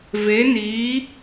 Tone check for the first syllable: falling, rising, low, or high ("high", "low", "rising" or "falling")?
rising